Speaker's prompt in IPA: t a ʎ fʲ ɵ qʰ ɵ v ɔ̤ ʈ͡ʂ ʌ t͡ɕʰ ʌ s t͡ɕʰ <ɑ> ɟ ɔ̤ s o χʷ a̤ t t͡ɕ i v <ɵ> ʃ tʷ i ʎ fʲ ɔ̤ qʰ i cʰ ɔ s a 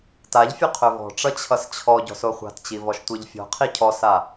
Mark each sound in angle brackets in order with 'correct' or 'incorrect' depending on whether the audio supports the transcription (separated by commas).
incorrect, incorrect